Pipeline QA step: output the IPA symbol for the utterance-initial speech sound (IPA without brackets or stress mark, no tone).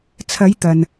t͡sʰ